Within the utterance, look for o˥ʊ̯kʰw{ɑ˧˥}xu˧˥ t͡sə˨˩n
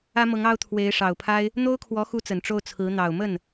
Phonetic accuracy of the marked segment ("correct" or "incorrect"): incorrect